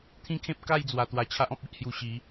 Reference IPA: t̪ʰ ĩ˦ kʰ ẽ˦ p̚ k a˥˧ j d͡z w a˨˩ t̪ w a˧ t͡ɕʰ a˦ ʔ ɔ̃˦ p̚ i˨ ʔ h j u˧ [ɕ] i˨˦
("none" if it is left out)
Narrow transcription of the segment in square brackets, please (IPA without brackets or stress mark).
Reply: ɕ